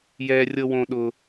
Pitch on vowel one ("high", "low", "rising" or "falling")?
high